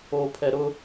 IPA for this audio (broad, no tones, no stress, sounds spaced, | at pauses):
o pʰ ɛ ɾ ʊ